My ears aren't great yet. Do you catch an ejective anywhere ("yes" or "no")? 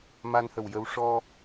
no